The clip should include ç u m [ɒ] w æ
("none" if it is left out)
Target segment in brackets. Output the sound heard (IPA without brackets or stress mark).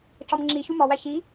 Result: ɒ